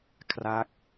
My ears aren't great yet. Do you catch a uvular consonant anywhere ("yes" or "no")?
no